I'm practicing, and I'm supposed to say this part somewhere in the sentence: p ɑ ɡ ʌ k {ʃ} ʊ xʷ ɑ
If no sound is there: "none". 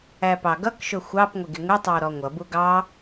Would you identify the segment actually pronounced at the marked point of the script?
ʃ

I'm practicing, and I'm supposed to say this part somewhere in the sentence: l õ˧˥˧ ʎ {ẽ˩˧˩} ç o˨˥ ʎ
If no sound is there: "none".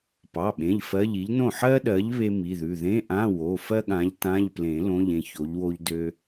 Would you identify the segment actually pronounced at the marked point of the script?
ẽ˥˩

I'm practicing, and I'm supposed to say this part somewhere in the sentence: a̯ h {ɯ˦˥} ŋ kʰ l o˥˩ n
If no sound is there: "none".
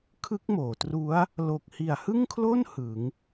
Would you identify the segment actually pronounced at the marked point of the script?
ɯ˥˩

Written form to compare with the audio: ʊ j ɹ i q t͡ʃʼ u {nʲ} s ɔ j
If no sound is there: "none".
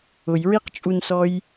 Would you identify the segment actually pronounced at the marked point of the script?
n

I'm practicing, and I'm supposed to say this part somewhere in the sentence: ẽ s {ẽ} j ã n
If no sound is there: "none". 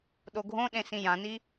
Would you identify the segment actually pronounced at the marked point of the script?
ĩ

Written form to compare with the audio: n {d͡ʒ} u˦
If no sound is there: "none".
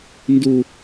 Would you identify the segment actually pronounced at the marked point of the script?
d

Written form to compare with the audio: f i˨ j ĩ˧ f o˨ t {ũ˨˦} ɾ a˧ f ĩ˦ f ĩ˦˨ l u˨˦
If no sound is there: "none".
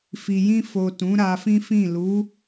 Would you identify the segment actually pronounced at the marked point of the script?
ũ˨˦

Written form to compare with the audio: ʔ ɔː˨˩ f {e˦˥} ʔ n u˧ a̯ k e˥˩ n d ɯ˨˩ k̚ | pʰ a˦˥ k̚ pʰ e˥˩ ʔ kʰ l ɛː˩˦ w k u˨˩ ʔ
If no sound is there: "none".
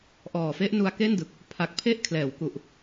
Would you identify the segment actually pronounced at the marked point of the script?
e˦˥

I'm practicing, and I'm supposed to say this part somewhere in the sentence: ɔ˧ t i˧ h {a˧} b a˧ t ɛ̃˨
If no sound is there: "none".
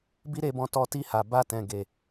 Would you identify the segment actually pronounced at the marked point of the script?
a˨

